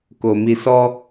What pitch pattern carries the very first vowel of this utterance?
low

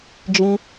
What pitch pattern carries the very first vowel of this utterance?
high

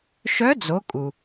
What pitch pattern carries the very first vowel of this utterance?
rising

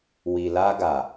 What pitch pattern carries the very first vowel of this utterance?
low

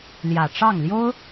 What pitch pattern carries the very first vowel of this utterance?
low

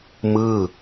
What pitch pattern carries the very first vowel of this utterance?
falling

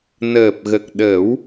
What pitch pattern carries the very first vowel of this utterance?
low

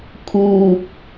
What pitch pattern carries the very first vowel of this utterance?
low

